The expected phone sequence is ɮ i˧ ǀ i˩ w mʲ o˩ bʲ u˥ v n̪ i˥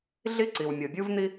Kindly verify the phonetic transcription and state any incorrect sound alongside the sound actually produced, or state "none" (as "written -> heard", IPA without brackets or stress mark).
none